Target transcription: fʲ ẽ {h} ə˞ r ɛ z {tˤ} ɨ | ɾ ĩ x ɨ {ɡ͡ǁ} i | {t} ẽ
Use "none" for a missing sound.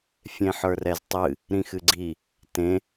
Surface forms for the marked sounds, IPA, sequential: ħ, tˤ, ɡ͡ǀ, t

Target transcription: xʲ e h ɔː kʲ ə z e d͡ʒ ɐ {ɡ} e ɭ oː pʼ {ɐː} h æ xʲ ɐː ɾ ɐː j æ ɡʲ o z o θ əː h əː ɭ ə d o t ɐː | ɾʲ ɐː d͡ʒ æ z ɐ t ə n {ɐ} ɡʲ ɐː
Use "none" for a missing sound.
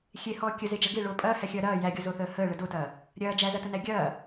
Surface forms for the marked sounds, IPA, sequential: ɡ, ɐː, æ

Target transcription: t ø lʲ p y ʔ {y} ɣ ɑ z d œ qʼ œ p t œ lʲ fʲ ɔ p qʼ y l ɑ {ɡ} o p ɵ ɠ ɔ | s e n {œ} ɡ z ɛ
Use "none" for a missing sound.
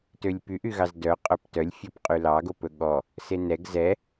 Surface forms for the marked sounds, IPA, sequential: y, ɡ, ɛ

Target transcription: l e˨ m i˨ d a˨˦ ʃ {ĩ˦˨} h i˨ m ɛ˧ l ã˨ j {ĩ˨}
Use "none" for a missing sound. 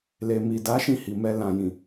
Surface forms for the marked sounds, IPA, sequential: ĩ˦˨, ĩ˨

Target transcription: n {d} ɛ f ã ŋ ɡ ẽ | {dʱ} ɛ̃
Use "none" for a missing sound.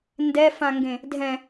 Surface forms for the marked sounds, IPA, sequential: d, dʱ

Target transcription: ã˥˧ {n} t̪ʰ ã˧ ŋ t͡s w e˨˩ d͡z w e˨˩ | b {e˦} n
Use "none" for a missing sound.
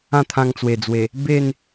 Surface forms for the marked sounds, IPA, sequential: none, e˥˧

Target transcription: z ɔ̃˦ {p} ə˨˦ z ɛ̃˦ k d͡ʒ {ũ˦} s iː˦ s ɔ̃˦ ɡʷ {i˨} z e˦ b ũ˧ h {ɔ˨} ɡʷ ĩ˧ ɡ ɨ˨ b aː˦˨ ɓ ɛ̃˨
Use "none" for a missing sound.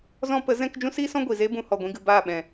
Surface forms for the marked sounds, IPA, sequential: p, ũ˦, i˨, ɔ˨

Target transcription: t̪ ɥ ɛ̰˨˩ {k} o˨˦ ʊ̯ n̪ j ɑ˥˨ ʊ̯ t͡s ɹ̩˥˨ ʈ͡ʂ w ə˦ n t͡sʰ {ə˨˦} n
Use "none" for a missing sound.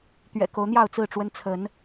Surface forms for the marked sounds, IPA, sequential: k, ə˨˦

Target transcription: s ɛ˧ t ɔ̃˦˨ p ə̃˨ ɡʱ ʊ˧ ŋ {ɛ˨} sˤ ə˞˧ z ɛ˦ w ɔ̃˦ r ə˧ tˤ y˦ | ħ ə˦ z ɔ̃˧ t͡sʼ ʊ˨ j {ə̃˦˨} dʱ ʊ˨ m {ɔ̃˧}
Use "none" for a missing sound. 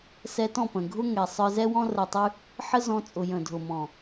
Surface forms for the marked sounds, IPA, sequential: ɛ˨, ə̃˨, ɔ̃˨

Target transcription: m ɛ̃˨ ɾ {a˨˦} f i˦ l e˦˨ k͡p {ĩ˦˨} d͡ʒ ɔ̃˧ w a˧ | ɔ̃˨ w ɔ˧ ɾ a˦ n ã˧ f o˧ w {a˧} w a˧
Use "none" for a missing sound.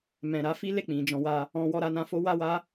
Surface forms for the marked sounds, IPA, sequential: a˨˦, ĩ˨, a˧

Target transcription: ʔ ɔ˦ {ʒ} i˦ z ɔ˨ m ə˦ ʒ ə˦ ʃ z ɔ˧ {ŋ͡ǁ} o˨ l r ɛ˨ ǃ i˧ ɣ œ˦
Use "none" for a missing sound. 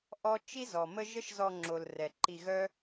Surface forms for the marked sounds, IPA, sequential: t͡ʃ, ŋ͡ǁ

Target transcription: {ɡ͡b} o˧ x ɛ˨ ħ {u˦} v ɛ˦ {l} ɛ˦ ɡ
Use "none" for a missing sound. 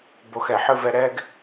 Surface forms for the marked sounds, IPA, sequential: b, ɯ˦, ɾ

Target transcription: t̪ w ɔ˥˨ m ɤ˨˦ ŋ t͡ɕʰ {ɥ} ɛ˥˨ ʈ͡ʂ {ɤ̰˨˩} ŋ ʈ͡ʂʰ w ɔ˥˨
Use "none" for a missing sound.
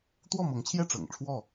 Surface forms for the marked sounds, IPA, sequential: j, ɤ̰˨˩

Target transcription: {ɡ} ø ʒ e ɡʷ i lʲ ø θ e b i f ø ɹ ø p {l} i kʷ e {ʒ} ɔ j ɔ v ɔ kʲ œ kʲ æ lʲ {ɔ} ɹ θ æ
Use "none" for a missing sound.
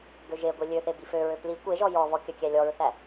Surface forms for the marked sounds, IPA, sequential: ɡ, l, ʒ, ɔ

